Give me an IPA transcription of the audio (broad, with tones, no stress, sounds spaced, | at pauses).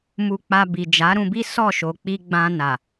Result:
m u˧ k͡p a˧ b i˨ d͡ʒ a˨˦ ɾ ũ˧ b i˦ s ɔ˦˨ ʃ o˨ k͡p i˧ ɡ͡b ã˧ n a˨